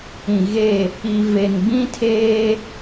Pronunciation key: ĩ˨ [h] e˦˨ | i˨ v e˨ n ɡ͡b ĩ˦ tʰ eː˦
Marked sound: incorrect: ɣ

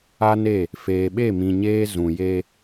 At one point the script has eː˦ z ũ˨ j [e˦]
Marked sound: correct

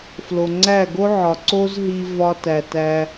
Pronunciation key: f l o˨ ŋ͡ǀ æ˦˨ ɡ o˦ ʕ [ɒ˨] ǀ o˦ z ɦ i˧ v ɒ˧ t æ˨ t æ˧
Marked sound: correct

